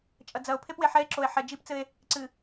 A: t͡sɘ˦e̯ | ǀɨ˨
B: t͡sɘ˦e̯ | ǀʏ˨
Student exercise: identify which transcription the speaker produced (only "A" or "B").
A